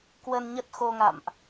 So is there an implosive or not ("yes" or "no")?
no